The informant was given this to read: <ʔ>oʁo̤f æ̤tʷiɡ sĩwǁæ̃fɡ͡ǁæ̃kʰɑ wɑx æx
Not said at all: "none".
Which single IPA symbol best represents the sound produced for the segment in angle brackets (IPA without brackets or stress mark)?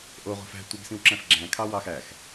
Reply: ʔ